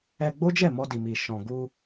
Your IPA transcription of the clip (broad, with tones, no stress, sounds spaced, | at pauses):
ɛ˧ ɡ͡b o˦ d͡ʒ ɛ˦˨ m ɔ˧ d i˨ m i˨ ʃ ɔ̃˨ ɡ u˧